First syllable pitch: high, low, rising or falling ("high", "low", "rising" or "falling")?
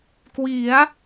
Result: rising